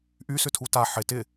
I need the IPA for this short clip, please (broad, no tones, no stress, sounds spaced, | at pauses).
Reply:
ʔ y s ʏ tʰ u t a ħ ɪ t ɪ